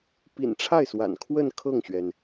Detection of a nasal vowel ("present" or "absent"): absent